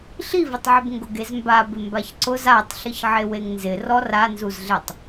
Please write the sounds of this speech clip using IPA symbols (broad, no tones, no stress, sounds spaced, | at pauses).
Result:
ɬ i v ɪ tˤ ʕ ɪ b ŋ ɡ ʊ ɡ e z m b a b ɪ m b a ç ǀ ʊ z a tˤ ɬ ɪ ç ʕ e w e ŋ n z ɪ r ɔ r a n z u z ɮ e tˤ